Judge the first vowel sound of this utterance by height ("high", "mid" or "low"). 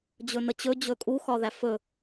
mid